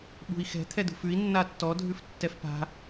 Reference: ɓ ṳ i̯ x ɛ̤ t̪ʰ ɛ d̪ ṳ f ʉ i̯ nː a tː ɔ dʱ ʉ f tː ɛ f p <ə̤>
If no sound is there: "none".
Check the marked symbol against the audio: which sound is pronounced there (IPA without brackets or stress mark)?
a̤